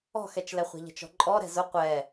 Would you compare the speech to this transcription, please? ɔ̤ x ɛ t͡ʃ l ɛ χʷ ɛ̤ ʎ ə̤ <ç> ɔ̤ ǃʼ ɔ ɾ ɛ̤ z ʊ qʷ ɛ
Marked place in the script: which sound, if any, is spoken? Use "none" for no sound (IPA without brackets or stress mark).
t͡ʃ